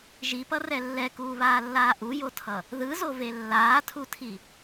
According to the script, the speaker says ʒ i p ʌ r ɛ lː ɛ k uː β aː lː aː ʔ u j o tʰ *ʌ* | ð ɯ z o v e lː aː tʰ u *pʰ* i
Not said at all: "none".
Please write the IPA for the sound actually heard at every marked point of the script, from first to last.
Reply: ʌ, tʰ

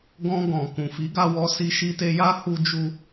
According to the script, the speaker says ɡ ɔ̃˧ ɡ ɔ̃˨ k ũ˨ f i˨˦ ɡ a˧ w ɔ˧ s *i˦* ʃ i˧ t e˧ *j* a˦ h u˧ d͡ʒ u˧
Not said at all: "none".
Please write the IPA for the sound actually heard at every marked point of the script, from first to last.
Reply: i˧, j

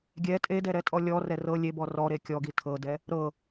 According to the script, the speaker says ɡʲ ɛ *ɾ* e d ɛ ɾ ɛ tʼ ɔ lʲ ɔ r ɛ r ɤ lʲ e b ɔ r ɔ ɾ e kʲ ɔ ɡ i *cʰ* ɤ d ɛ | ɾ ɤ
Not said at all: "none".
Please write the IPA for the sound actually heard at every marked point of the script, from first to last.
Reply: tʼ, tʰ

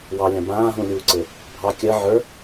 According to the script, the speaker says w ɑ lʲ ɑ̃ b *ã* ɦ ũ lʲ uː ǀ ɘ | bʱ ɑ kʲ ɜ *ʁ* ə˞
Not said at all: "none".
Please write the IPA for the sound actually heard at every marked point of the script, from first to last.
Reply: ãː, ʕ

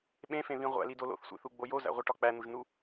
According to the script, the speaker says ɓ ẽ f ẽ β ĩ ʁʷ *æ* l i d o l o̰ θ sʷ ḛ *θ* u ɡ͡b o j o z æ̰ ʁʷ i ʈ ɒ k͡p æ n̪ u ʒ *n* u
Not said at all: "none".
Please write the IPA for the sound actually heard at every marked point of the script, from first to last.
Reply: æ̰, θ, n

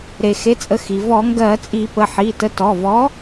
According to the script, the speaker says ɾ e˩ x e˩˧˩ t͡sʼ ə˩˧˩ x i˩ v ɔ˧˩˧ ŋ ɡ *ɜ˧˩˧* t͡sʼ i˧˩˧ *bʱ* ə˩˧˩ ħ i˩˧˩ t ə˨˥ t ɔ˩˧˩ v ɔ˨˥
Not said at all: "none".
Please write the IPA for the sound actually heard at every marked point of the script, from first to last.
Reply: ɜ˧˩˧, p

